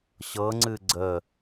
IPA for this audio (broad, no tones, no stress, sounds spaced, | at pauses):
ɕ ɤ ŋ͡ǀ ɨ ɡ͡ǀ ə